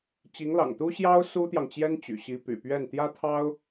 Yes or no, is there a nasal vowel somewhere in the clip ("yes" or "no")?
no